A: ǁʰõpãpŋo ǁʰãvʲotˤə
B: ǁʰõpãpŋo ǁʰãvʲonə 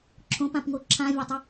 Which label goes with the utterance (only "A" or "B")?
A